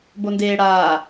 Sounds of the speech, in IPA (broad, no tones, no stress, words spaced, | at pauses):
bondeːɽaː